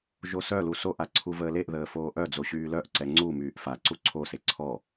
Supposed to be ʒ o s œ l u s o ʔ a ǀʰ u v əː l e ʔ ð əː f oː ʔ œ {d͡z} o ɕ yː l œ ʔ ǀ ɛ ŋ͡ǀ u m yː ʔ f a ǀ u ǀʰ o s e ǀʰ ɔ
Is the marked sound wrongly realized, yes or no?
no